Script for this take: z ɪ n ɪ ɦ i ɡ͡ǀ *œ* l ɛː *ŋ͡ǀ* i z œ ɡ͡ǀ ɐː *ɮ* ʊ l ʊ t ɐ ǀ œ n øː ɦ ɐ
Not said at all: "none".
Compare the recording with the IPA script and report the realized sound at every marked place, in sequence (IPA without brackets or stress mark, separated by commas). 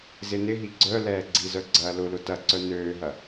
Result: œ, ɡ͡ǀ, l